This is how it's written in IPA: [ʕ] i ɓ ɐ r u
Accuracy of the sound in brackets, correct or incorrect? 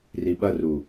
incorrect